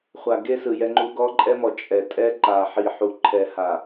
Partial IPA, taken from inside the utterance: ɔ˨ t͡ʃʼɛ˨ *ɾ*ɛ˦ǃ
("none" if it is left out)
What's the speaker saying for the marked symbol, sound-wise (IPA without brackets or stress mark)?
tʼ